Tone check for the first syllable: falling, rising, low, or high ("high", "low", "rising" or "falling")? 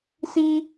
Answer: high